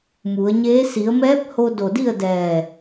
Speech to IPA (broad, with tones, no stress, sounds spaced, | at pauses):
m u˩˧ ə̯ ɲ eː˧˥ s i˩˧ ə̯ m ɛː˧˥ p̚ h o˧ d o˧˩ d i˥˨ ə̯ d ɛː˧˩